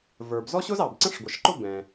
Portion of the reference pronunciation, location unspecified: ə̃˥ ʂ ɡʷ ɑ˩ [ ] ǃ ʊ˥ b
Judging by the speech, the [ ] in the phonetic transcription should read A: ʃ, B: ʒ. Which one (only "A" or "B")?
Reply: A